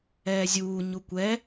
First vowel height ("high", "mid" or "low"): mid